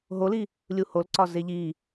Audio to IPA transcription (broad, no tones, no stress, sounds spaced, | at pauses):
ɦ o l i | lʲ u h o l ǀ ɒ z e ʎ i